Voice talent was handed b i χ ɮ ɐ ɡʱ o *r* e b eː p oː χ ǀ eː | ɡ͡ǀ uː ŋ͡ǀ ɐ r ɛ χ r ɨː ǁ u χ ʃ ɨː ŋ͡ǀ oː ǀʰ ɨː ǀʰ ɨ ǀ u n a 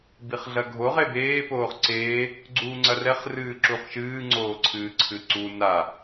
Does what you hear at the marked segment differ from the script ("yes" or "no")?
yes